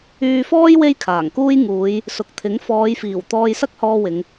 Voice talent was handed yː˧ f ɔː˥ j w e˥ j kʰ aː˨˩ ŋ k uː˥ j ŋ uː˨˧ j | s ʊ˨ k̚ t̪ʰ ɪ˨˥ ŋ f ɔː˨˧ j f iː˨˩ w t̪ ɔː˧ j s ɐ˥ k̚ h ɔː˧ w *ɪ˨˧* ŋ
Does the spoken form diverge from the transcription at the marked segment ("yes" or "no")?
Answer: no